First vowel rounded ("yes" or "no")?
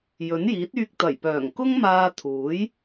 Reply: yes